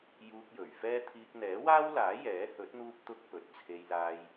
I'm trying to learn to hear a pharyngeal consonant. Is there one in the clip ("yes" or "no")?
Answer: no